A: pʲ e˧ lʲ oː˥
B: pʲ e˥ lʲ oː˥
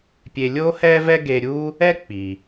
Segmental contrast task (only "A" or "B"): A